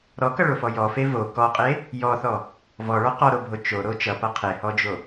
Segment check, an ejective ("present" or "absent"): present